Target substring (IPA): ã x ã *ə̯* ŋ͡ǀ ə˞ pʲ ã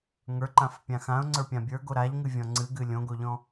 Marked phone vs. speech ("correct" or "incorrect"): incorrect